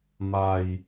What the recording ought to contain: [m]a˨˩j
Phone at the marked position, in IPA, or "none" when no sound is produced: m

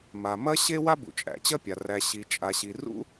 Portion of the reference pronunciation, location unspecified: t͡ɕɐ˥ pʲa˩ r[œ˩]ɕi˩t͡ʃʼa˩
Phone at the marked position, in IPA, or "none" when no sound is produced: æ˩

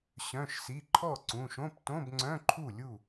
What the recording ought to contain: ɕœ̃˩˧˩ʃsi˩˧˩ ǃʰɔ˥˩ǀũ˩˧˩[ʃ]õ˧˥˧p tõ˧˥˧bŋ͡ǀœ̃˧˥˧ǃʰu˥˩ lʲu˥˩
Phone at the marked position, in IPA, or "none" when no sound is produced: ʃ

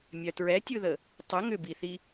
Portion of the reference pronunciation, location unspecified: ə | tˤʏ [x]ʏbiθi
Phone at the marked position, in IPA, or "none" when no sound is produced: ŋ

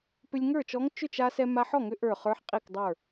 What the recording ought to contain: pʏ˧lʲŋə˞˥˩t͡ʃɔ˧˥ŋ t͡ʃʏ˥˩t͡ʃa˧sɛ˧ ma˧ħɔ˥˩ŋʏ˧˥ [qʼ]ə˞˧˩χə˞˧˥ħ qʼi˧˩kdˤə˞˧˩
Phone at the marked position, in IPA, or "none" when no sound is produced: ʔ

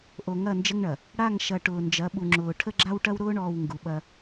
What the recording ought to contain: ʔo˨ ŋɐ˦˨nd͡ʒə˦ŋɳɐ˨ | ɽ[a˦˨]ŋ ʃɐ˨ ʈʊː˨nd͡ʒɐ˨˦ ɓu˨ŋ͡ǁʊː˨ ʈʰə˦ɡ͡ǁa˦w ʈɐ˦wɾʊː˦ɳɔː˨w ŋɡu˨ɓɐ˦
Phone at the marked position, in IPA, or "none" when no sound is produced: a˦˨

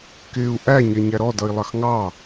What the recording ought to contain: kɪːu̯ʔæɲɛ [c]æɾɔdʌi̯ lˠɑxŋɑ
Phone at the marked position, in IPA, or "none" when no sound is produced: ɲ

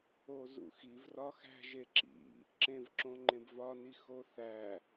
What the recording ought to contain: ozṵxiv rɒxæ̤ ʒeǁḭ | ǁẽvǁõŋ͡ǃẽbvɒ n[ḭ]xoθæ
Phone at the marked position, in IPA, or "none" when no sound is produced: i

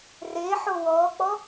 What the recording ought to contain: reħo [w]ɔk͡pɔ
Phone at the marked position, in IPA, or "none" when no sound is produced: w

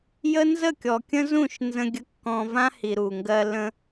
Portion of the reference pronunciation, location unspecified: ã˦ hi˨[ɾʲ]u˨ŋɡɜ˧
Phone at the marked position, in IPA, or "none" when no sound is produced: ɾ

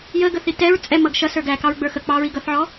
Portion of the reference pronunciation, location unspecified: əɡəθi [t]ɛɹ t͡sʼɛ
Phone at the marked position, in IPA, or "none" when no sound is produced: t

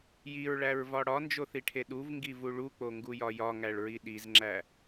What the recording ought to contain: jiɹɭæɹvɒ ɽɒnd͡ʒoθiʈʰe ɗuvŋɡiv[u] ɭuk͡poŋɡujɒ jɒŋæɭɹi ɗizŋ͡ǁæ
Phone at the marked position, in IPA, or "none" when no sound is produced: u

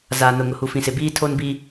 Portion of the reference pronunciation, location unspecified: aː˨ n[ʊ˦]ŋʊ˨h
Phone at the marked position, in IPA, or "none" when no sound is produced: ʊ˨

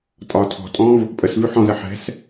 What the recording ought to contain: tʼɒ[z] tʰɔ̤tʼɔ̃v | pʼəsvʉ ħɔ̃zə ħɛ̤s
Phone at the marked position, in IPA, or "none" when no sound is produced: none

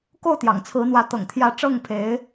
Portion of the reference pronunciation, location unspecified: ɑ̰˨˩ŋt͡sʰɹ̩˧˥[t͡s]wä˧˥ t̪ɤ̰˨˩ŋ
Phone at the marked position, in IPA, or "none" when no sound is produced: n̪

